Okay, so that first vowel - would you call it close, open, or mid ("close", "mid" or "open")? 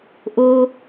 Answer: mid